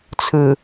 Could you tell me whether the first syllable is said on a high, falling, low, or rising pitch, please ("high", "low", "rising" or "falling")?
low